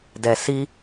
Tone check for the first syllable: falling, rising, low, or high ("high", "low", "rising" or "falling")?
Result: low